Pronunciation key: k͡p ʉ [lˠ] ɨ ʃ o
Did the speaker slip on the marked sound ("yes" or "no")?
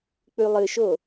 no